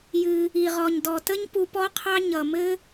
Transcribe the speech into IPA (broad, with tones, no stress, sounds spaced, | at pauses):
j ɨ˩ | i˩ ʁ ɔ˩ ɲ d ɔ˩ t ə˥ ɲ p u˧ p ɔ˥ qʰ ɑ˥ ɲ ʌ˩ m ɘ˥